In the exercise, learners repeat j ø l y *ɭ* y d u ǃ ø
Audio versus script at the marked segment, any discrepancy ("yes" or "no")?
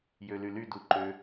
yes